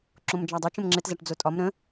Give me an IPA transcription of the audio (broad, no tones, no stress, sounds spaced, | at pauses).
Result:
ǁ õ m d͡ʒ a dˤ ʊ t͡ʃ ə̃ m ŋ͡ǁ ɘ t z a ʈ d͡z o tʼ ɒ m ɾ ə̃